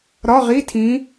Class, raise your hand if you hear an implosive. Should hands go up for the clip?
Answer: no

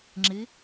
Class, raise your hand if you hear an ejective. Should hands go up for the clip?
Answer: no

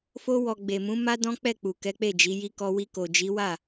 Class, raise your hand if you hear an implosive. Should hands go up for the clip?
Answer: no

